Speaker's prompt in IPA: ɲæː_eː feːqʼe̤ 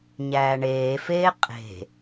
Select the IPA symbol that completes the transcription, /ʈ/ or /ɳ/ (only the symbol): ɳ